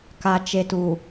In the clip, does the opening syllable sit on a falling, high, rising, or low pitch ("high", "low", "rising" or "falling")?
low